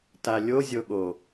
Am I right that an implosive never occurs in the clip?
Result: no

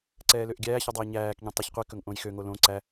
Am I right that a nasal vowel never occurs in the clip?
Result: no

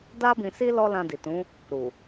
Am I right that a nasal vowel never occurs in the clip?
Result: no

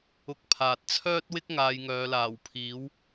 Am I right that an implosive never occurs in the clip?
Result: yes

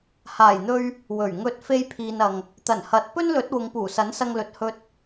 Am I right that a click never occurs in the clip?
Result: yes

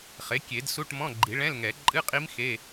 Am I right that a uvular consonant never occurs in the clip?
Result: no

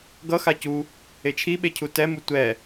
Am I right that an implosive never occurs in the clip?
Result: no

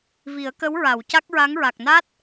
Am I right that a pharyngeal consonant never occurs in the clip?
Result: yes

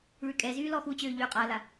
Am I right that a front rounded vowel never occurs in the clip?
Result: no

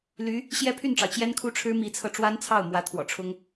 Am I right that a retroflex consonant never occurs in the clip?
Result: no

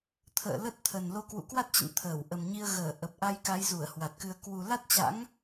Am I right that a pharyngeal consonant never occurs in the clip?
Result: yes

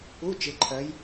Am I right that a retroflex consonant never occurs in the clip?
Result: yes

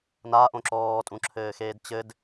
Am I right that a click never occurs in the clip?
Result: no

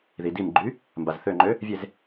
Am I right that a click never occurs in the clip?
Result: no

